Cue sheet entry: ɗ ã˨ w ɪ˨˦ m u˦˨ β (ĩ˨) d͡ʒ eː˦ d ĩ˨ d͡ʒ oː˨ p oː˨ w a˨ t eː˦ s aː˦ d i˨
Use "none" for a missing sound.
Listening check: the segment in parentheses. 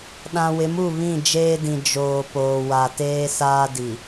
ĩ˦˨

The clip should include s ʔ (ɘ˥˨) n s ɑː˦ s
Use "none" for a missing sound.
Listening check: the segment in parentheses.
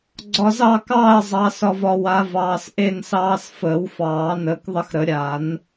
e˥˨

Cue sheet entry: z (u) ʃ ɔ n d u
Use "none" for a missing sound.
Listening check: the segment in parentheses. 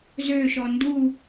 ø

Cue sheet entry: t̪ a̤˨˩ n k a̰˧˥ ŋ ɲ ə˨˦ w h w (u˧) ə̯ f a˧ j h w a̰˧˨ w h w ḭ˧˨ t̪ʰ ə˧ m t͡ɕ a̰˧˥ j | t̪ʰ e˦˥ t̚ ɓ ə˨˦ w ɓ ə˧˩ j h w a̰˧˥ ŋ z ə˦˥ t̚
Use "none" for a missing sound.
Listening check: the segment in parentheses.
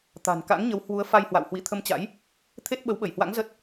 u˨˦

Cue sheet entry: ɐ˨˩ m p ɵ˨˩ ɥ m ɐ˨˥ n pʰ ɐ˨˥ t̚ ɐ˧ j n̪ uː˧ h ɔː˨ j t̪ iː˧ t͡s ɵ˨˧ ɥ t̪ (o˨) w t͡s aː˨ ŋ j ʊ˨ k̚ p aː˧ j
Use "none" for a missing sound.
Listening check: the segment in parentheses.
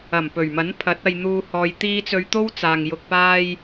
o˥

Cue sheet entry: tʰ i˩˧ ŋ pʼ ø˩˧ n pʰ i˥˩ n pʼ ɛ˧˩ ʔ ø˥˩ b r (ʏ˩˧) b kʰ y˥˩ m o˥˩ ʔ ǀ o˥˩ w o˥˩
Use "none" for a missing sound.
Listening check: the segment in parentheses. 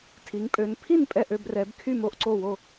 ɛ˩˧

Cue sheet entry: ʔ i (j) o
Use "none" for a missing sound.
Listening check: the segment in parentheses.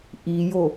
j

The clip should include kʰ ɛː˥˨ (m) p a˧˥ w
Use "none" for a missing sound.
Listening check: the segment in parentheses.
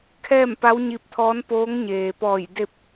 m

